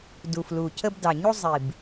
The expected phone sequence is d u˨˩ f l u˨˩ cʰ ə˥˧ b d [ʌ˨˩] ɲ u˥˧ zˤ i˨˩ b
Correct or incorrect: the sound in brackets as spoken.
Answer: incorrect: ɑ˨˩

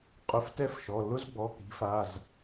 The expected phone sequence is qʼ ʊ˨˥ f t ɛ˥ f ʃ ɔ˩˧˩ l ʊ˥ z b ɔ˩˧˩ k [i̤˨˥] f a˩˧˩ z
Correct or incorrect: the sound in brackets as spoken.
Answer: correct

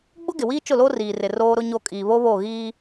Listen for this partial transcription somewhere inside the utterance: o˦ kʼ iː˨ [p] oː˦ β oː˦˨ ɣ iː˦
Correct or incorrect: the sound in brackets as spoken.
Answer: incorrect: β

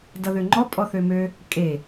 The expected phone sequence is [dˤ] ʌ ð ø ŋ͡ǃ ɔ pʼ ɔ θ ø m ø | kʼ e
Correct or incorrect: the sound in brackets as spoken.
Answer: incorrect: d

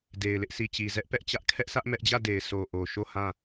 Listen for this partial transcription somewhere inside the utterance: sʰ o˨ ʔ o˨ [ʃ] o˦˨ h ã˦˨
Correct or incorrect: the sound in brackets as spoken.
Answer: correct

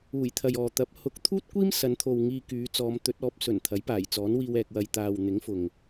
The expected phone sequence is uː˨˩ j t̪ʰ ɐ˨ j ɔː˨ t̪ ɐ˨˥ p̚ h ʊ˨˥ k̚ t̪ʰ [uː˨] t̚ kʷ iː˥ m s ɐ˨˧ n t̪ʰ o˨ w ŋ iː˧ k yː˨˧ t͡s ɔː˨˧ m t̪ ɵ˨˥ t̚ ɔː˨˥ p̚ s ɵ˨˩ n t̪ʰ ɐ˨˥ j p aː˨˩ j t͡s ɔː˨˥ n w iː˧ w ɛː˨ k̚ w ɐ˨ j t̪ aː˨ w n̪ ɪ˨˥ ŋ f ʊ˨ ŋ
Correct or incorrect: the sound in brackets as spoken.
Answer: incorrect: uː˥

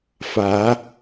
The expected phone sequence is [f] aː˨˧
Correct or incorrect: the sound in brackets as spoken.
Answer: correct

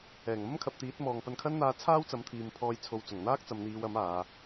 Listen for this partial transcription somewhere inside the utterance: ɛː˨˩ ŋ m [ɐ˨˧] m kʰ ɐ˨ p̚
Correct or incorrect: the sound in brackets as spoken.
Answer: incorrect: ɐ˥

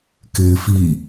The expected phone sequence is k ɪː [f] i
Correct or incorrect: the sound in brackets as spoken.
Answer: correct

